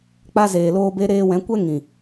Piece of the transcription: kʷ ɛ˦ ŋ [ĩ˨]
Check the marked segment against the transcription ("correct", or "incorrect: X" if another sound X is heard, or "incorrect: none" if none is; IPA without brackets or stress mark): correct